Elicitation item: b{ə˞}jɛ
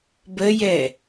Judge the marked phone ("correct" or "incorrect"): incorrect